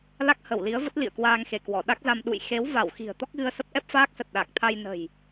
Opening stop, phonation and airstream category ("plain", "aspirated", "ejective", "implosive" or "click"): plain